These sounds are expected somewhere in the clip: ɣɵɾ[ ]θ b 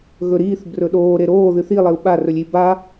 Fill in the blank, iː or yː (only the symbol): iː